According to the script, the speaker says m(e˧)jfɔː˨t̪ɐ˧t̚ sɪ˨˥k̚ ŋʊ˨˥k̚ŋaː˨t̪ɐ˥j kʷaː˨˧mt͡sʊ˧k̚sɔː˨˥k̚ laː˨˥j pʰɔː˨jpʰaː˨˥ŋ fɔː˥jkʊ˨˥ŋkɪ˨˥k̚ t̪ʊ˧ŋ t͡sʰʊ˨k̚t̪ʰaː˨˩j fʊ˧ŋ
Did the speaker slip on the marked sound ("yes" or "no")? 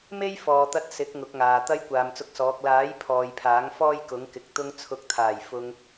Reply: yes